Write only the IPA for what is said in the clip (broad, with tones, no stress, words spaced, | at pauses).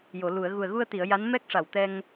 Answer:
jo˨˩˨lu˨˩˨ə̯ ɣu˨˩ə̯ɣu˧ə̯t̪i˨˩˨ə̯ ja˧˥n mɛ˦˥k̚ʂa˨˩wt̪ɛ˧ŋ